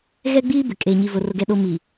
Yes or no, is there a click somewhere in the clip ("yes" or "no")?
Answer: no